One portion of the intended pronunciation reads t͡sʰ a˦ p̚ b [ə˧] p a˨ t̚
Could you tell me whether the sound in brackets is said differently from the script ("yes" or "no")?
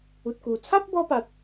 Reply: yes